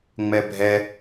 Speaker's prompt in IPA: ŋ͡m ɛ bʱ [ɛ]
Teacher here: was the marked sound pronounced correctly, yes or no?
yes